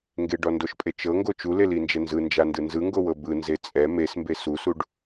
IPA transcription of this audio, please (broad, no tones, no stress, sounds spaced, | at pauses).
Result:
ŋ ɡ e ɖ ɔ n d o ʃ pʼ e t͡ʃ ɤ ŋ ɡ o t͡ʃ u l e l i n d͡ʒ ɛ n z ɯ n d͡ʒ a n d ɯ n z ɯ ŋ ɡ o w ɤ b ɯ n z e t͡sʼ ɛ m e s m b e s u s u ɖ